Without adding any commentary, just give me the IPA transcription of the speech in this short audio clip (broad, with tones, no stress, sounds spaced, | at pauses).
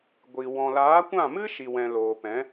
ɡʷ i˨ w ɔ̃˨ l aː˨˦ kʷ ã˦˨ m ɨ˦ ʃ i˨ w ɛ̃˨ l oː˨ p ɛ̃˨˦